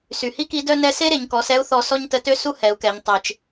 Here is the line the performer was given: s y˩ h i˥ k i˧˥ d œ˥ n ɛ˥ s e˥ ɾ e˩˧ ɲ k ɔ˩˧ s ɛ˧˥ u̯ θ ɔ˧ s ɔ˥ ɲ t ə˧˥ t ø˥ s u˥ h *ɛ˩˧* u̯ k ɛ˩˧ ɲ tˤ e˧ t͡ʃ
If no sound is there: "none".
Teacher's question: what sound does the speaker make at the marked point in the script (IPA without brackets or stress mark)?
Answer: ɛ˩˧